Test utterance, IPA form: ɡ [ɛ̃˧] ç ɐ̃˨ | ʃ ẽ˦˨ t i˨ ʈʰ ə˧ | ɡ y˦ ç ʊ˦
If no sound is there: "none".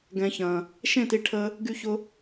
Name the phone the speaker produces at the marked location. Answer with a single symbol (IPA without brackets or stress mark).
ɛ̃˨